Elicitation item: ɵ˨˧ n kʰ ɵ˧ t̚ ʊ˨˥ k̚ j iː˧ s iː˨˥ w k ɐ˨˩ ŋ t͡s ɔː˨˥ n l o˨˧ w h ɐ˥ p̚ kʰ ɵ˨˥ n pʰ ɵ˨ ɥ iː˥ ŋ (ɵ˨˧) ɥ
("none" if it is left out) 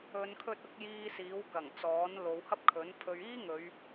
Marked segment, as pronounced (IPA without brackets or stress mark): ɵ˨˧